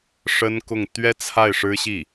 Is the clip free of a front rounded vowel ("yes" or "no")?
yes